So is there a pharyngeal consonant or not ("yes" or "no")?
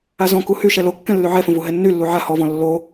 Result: yes